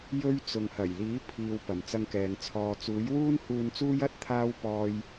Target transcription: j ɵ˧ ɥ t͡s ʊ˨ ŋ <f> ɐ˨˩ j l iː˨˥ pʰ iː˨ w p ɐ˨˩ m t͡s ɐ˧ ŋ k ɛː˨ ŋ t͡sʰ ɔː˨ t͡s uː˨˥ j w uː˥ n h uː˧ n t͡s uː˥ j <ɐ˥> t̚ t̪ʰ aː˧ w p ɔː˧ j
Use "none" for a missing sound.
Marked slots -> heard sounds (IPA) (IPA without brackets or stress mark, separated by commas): h, ɐ˥